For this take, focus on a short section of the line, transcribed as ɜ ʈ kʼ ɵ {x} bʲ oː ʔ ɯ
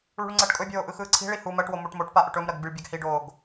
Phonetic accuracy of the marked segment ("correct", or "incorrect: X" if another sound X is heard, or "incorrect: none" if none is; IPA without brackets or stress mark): incorrect: none